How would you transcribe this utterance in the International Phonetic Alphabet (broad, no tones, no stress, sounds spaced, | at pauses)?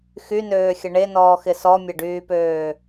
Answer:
x y n øː xʲ ə ɳ e n ɔː x ɪ s ɔ mʲ ɐ ɖ yː p øː